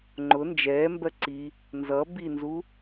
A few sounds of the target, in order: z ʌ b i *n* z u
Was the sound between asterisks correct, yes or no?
yes